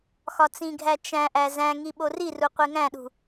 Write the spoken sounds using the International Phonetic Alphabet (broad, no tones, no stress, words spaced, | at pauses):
xɒt͡sĩɡʱæ t͡ʃæ̃ʔæ zæ̃ŋi ɓoriru qʷeŋæ̃ɗṳ